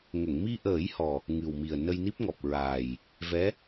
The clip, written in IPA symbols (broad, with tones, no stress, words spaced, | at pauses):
ŋə˨˩˨ŋ mi˧ʔəː˨˩˦j hɔ˨˩ | ŋɨ˨˩wmi˨˩ə̯ nə˧jni˦˥p̚ŋɔ˨˩p̚ ɹaː˨˩j | vɛ˧˥